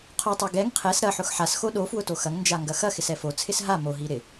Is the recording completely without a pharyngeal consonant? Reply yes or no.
no